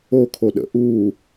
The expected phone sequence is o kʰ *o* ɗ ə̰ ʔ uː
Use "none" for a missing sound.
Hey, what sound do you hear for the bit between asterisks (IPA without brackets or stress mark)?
o